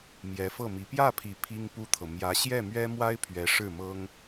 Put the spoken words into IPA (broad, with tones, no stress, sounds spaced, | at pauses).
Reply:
m j ɛ˧˥ f ɤ˥˩ m i˧˥ p j ä˥˩ pʰ i˨˩ pʰ i˥ ŋ p u˥ t̪ʰ ɤ˨ m j ä˧˥ ɕ j ɛ˥˩ m ɥ ɛ˥ m w a˥ ɪ̯ pʰ ɥ ɛ˧˥ ʂ ɻ̩˥˩ m ɤ˥ ŋ